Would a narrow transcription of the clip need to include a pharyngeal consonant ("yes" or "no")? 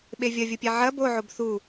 yes